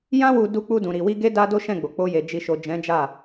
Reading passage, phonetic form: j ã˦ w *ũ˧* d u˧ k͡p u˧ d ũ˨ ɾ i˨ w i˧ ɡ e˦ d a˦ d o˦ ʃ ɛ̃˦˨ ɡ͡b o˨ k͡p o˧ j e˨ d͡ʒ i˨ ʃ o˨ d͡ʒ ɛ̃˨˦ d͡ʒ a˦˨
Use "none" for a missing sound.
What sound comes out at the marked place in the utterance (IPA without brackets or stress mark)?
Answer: u˧